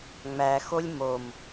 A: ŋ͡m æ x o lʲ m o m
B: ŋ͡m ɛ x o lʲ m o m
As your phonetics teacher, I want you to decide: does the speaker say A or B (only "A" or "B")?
A